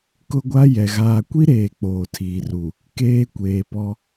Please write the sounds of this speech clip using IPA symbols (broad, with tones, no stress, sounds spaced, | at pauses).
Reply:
k ʊ˦ ɡʷ a˦ j ɛ˨ ɣ aː˨ kʷ i˦ ɾ eː˨ k͡p oː˨ tʰ iː˨ r u˨ | k eː˦ kʷ eː˨ p ɔ˦